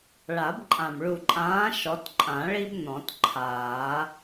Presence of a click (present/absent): present